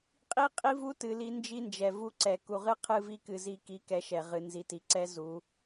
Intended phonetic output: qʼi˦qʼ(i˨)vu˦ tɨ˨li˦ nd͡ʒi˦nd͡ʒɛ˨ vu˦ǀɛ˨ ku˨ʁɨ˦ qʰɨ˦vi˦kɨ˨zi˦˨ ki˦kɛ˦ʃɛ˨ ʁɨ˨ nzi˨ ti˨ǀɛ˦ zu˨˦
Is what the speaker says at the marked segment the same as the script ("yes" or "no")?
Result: no